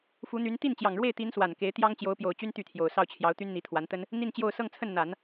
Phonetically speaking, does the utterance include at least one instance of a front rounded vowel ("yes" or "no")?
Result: yes